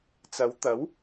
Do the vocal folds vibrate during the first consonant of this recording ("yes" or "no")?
no